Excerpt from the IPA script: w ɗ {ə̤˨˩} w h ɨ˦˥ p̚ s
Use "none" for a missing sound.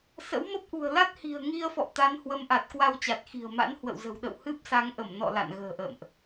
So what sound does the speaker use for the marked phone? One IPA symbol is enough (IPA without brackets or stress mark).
ə̰˧˨